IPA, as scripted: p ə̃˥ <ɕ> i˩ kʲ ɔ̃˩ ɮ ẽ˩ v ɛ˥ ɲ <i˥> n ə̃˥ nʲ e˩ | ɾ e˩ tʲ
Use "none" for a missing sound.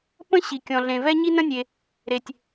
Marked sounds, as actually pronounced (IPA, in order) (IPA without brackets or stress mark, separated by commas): ɕ, i˥